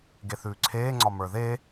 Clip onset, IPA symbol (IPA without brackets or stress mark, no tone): ɡ